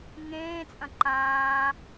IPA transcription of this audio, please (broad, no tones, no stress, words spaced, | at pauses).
ŋẽː t͡sʼɐ̃ǃãː